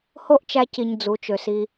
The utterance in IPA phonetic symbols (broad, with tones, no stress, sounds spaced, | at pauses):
h o˦ ʔ t͡ʃ æ˧ c i˨ ɲ d͡z u˨˦ t͡ʃ ø˨ s i˧